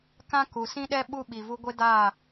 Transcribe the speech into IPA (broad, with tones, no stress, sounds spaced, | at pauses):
k ã˦ k u˨ s ĩ˦ ɗ ɛ˦ ɓ u˦ ɓ i˨ v u˦ ɡʷ e˦ d a˦˨